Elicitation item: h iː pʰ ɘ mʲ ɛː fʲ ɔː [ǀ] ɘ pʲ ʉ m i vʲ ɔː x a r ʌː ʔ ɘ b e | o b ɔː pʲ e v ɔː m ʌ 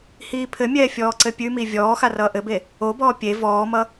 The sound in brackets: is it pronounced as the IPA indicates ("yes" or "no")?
yes